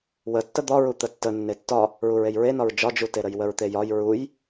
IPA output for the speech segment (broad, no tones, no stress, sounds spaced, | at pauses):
w ə tː ə d̪ ɒ ɹ u t̪ ə tː ə nː e tː ɒ | ɹ u ɹ e j ɹ e n ɒ ɹ d͡ʒ ɒ d͡ʒ u t e ɾ ə j w ə ɹ t̪ e j ɒ j ɹ u j